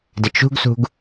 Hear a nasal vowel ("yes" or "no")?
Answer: no